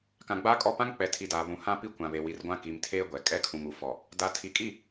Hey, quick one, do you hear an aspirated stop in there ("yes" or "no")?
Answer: yes